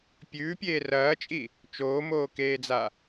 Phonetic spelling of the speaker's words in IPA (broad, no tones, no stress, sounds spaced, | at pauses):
pʲ ʉː pʲ eː r ɐː t͡ʃʼ i | t͡ʃ oː m oː k eː d͡z a